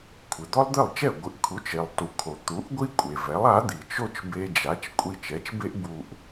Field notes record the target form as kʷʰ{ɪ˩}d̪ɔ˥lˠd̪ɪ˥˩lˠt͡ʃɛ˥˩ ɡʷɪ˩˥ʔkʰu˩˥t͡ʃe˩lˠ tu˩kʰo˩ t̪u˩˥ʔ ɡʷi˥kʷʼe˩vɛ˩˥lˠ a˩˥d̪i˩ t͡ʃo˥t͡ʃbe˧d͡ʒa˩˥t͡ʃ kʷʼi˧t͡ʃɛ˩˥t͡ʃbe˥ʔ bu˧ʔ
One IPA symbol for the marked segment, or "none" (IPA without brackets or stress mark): ɪ˩